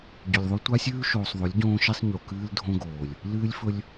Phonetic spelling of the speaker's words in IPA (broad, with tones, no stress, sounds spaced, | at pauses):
ɟ ɵ˨ lʲ ðˤ o˦ tʷ a˦ sʲ ʉː˦ ʃ oː˨ sˤ ðˤ ɵ˨˦ lʲ ɟ õː˦ ʃ i˦ sˤ ɲ o˨ k ɨː˦ l dʱ õ˦ ɡ oː˨ lʲ | l ɨː˦ lʲ f ɵ˦ lʲ